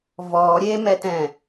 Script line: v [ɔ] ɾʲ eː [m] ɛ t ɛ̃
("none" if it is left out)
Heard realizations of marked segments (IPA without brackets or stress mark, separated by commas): ɔː, m